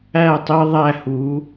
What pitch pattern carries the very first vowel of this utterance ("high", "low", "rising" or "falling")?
falling